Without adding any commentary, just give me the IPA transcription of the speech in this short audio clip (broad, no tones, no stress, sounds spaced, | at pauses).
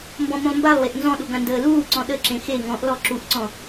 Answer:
m b ɔ̃ m ũ lˠ m b a lˠ w e ʔ n z ɔ̃ ɗ u ɡ ã n d əː l uː ǀ ɔ̃ ɗ ə ǁ ẽ x e ŋ ɔ̃ ʔ l ɔ ǁ u ʔ ǀ ɔ̃